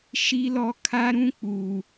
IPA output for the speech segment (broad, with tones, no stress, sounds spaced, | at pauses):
ʃ i˦ l ɔ˦ kʰ a˦ ɾ ũ˦ k͡p uː˨